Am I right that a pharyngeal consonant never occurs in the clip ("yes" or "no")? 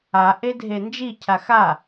yes